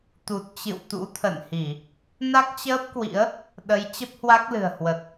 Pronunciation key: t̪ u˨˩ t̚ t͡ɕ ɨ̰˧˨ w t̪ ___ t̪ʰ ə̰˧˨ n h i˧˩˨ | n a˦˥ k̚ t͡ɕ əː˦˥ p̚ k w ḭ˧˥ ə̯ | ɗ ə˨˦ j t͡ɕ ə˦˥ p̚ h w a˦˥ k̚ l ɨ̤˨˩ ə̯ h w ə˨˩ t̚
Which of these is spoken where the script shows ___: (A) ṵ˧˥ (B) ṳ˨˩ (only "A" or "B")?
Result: A